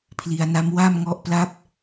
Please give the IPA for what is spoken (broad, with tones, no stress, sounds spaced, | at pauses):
pʰ l i˩˦ a̯ n a˦˥ m w a˥˩ m ŋ ɔ˦˥ ʔ p l a˦˥ p̚